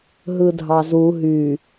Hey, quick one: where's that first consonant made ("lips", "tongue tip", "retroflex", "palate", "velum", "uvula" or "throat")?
throat